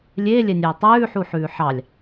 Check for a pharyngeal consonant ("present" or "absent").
present